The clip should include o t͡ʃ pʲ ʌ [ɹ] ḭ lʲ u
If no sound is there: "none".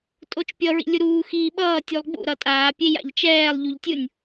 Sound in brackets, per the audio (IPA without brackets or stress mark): ɹ